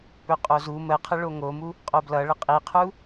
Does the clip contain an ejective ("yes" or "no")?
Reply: yes